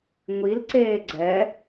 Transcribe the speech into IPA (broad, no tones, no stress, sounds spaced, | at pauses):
ŋʷ i l ǀ eː ɡ͡ǀ ɛ